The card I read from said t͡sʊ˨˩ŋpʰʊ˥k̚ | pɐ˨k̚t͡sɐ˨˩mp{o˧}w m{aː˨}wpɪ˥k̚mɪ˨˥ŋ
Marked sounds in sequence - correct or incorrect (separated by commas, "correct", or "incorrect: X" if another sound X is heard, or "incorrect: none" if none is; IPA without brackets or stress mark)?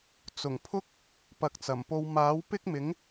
correct, incorrect: aː˨˥